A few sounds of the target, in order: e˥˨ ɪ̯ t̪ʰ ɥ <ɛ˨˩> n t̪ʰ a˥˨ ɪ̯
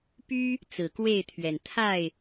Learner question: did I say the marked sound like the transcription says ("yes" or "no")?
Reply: yes